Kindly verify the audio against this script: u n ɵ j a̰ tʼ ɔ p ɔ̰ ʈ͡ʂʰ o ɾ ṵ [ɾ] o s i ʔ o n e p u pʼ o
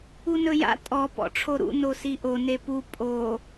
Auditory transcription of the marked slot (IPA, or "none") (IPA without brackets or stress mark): n